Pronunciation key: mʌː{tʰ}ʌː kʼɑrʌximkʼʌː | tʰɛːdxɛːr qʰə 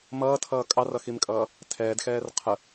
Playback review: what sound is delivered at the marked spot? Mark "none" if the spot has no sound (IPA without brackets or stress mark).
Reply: tʰ